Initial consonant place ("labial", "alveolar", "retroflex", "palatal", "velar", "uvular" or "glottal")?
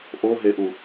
glottal